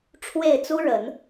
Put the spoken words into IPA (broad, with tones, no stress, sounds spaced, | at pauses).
ʈ͡ʂʰ w e˥˩ ɪ̯ t͡s u˥ ɻ ə˨˩˦ n